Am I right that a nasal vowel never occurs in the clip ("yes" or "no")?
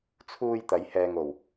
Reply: yes